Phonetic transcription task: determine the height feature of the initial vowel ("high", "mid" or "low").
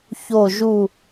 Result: mid